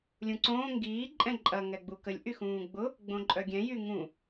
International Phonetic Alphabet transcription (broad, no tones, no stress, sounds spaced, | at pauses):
lʲ ũ ǀ õː ŋ ɡ iː ǃʼ ɛ̃ ǃʼ ɐ ŋ ɛ ɡ͡b u k ə lʲ ʔ y x ũː ɡ͡b ʊ | ɡ͡b õ ǃʼ œ ɡʲ ɛ̃ j y ŋ ũ